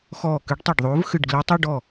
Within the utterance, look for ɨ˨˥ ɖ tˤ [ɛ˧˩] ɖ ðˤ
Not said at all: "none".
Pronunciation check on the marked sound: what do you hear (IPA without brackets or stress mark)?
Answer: ɛ˧˩